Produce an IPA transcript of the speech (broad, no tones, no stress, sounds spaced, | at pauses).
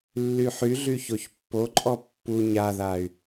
lː y ħ y ɮ y ç o ç pː o ǃʼ ɔ pː u ɲ a ð a y̯